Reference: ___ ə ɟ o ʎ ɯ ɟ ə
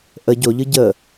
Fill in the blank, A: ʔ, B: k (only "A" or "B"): A